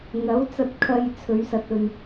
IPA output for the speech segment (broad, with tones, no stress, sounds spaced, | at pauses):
ŋ ɐ˨˥ w t͡s ɐ˧ t̚ kʰ ɐ˧ j t͡sʰ ɵ˨˧ ɥ s ɐ˨ t̚ ɵ˨ n